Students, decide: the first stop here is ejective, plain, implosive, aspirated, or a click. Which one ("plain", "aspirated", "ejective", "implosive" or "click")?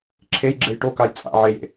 click